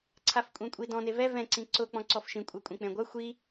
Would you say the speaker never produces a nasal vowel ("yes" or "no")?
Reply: no